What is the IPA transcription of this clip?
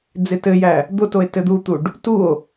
d͡zɪtɘjæ | d̪ot oe̯tɘd̪ut̪uɖ | tuo̯

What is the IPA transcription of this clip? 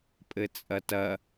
pʼɘt͡sʼɐtɐ

